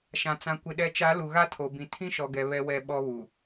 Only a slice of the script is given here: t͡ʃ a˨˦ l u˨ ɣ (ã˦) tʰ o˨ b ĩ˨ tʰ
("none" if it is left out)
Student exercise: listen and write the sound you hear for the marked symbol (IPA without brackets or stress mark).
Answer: a˦